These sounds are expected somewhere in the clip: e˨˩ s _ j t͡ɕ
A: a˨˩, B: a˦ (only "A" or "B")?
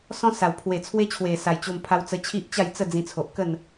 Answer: A